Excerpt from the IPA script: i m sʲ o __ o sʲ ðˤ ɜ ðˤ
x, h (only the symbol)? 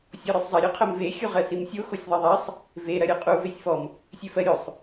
x